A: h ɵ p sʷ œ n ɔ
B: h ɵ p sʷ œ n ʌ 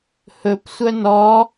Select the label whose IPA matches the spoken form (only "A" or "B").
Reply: A